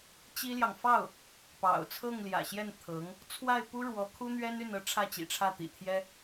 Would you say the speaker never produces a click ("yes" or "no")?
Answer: yes